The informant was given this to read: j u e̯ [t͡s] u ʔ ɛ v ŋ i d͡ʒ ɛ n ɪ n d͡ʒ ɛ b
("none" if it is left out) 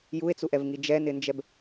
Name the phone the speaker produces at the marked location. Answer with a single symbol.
t͡s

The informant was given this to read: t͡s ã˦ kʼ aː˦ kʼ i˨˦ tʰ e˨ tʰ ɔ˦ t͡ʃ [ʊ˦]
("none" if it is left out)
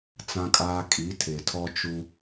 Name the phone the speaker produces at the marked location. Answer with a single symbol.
u˦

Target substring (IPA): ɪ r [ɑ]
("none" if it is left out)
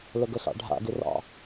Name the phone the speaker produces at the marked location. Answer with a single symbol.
ɑ̰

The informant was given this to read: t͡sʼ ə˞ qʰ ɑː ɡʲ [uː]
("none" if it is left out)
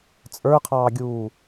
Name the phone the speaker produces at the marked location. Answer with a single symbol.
uː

